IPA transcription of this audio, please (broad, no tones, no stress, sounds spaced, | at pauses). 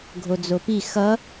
ɡʱ o d͡z o p i x ʌ